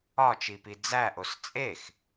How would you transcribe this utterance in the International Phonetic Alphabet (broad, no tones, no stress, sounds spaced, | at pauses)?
ɒ t͡ʃ i p i d͡z æ ʔ o s t͡sʼ e x